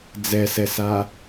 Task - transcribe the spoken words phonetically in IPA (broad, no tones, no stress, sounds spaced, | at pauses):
d͡z ɛ s ɛ s a